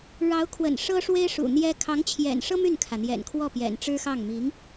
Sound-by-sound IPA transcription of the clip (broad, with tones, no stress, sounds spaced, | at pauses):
ɻ ɑ˧˥ ʊ̯ kʰ w ə̰˨˩ n ʂ ɤ˥ ʂ w e˥ ɪ̯ ʂ ṵ˨˩ n̪ j ɛ˥ kʰ ɑ˧˥ ŋ t͡ɕʰ j ɛ̰˨˩ n ʂ ɤ˥ m y˥˩ n kʰ ä˩ n̪ j ɛ̰˨˩ n kʰ w ɔ˥˩ p j ɛ̰˨˩ n ʈ͡ʂ ɻ̩˥ x ɑ˥˩ ŋ m i˧˥ ŋ